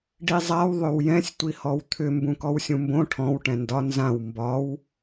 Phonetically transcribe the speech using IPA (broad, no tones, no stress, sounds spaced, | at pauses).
ɖ i zˤ a w ðˤ ʏ w j ɛ̃ sʲ tʷ i h ɔ w t̪ʰ ʏ m b ũ k ɔ w sʲ ũ m b õ ʈʰ ɔ̃ w ʈ ɛ̃ n d ɒ n z ã w m b ɒ w